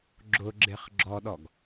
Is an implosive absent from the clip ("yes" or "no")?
no